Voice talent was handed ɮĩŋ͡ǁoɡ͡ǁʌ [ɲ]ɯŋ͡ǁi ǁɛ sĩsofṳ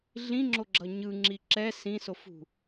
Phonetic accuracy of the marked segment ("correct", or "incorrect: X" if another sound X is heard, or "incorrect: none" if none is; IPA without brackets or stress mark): correct